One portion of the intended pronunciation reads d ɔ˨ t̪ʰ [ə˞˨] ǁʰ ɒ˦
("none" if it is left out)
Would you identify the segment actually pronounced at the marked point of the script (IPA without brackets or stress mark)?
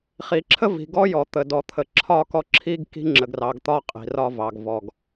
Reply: ə˨